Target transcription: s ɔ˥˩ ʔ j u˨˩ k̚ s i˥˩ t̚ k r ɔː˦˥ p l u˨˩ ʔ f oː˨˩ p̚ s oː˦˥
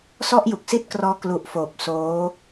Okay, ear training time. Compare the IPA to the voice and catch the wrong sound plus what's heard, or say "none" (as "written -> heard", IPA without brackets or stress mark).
p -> k